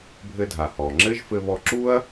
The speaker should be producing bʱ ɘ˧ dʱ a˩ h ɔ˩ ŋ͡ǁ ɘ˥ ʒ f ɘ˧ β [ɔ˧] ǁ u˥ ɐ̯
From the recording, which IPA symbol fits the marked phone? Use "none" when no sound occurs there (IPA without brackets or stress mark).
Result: ɔ˧